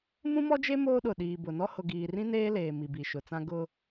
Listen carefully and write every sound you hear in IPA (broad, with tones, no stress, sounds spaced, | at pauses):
m ũ˦ m ɔ˦ d͡ʒ e˦ m oː˦ ɗ ʊ˨ ɗ iː˨ b ʊ˨ n ɔ˦ h ʊ˨ ɡ iː˨ r ĩ˦ n eː˦ l eː˨ m i˨ b i˨ ʃ ʊ˨ t͡s ã˦ ɡ ʊ˦